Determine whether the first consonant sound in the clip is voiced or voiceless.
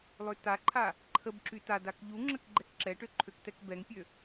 voiced